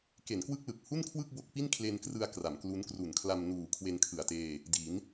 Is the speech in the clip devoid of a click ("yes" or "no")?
yes